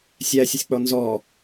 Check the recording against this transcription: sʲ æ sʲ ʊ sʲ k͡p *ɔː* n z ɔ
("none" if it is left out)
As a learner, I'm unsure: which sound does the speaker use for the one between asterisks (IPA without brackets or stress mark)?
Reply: ɔ